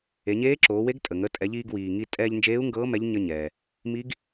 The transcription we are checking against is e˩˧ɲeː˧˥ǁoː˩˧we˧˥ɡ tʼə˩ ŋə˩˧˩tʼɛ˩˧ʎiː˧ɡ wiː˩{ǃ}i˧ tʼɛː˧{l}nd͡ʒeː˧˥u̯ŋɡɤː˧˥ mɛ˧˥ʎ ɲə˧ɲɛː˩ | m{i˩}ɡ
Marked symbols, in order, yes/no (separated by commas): no, no, no